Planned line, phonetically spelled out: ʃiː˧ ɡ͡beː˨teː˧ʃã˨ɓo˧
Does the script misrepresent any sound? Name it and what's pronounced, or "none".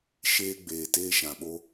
iː˧ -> eː˧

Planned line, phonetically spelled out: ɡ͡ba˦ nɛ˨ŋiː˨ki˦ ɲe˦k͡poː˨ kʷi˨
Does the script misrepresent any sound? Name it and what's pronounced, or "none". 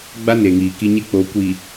ɛ˨ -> e˨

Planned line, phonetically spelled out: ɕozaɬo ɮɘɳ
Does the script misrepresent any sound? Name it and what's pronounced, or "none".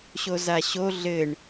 ɬ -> ɕ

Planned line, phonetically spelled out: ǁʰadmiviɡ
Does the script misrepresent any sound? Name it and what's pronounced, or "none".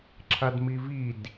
ɡ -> d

